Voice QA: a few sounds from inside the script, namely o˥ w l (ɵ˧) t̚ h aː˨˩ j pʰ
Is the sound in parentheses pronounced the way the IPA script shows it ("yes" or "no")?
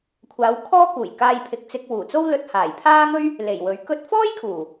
yes